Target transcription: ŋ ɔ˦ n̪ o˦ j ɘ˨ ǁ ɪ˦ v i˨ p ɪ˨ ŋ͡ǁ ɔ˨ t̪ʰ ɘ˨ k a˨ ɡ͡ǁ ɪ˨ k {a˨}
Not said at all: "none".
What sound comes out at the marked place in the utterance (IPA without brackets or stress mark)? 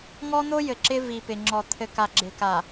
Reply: a˨